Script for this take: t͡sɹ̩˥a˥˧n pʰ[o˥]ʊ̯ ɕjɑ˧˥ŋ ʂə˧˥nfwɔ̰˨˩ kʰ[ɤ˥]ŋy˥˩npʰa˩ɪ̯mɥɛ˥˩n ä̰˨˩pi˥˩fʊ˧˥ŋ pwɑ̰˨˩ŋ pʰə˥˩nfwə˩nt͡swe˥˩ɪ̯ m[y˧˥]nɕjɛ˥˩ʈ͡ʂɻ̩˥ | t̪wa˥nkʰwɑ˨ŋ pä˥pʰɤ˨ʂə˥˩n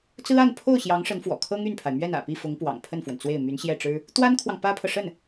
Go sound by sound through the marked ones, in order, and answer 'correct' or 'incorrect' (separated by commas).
incorrect, correct, correct